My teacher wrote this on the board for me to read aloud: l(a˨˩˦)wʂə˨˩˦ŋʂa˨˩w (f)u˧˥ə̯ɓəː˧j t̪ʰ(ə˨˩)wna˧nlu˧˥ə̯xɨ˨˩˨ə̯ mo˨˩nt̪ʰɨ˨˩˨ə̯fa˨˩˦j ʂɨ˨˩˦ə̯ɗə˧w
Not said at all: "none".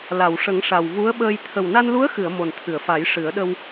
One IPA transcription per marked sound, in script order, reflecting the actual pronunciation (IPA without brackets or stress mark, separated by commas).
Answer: a˨˩˨, v, ə˨˩